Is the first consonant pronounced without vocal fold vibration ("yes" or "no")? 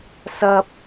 yes